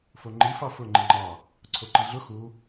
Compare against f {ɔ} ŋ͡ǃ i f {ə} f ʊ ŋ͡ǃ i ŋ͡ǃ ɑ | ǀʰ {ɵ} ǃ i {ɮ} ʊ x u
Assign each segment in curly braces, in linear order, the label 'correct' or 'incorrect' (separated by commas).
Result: incorrect, incorrect, incorrect, correct